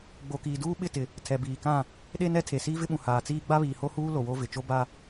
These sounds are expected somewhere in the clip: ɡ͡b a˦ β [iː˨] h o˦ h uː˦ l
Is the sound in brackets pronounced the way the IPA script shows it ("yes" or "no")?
yes